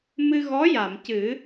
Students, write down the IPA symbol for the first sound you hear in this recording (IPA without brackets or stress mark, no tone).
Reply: m